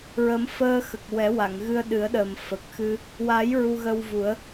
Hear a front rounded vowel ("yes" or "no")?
no